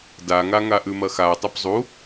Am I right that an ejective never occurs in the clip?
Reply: yes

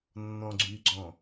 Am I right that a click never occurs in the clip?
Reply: no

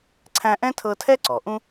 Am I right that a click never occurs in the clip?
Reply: no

